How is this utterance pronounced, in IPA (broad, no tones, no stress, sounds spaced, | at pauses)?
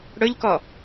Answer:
ɽ ɵ ʎ k ɔ